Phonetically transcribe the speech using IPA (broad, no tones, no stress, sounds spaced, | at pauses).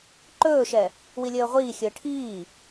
ǃ ɵː ʃ ɛ | w i lʲ əː ʁʷ iː xʲ əː ʈʰ iː